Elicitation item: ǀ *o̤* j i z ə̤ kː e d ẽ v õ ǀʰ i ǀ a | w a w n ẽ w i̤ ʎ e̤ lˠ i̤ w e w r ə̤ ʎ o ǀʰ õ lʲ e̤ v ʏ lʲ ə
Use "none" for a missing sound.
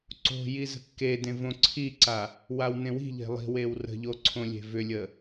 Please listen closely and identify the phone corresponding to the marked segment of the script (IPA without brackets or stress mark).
o̤